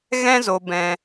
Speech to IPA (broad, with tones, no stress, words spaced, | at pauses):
ɣɛ̃˦zo˨ bɛ̃˨